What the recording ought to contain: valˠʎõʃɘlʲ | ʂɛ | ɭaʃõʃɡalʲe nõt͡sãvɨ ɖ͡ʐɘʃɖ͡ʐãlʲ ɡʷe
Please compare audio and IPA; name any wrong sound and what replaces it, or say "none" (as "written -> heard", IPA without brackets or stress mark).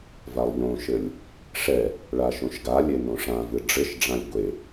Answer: t͡s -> ʂ